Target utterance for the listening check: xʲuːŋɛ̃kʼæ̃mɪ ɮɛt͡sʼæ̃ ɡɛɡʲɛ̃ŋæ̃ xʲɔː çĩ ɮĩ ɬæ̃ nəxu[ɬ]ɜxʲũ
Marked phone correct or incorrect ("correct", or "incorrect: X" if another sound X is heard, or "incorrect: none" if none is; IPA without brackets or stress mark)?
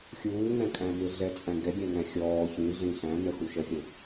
incorrect: ʃ